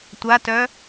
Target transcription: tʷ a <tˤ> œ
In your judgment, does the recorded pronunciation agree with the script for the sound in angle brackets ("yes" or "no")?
no